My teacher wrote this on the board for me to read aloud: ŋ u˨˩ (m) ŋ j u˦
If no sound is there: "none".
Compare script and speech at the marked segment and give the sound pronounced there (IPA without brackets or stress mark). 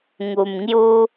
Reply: m